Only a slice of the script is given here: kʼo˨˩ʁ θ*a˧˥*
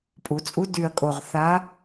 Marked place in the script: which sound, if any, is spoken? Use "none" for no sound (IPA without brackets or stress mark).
a˧˥